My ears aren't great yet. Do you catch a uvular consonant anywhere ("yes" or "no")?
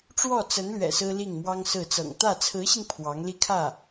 no